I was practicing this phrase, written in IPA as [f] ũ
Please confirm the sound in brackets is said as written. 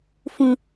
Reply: yes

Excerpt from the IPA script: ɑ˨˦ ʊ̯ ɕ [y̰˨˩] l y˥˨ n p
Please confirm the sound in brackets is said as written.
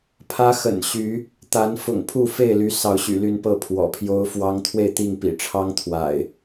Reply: yes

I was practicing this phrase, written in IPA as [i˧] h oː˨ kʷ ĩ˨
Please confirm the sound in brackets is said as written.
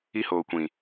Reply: yes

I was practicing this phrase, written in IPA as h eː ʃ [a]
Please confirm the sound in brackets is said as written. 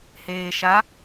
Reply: yes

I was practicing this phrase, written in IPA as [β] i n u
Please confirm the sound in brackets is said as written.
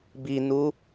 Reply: no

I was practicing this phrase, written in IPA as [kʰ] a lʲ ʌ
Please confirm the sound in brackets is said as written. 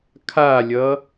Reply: yes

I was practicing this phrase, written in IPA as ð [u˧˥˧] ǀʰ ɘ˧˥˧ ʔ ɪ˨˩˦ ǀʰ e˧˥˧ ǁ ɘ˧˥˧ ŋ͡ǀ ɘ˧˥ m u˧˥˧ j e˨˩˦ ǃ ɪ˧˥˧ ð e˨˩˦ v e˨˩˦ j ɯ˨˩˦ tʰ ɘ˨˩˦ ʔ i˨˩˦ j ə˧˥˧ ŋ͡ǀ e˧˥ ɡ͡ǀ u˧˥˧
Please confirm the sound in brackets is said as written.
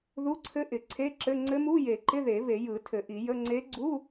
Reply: yes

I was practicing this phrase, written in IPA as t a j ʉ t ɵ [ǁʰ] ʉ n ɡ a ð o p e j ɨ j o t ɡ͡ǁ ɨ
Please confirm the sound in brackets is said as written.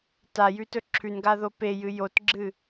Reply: yes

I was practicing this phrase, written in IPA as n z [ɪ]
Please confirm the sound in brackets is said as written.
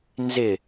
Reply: yes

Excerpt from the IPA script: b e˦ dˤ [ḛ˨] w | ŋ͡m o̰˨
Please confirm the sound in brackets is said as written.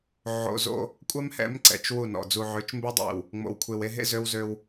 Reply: yes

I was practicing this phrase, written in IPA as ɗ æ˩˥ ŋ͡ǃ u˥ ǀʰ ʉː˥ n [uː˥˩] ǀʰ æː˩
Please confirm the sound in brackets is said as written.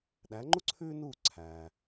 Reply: yes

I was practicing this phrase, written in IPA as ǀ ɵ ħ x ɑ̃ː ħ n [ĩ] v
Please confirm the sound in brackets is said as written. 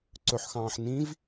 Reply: yes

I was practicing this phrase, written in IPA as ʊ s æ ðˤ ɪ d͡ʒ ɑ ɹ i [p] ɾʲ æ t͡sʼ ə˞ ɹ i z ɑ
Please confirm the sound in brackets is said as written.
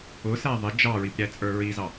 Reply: yes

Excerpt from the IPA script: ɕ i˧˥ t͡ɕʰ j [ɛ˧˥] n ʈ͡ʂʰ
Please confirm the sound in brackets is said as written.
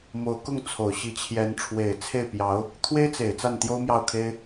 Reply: yes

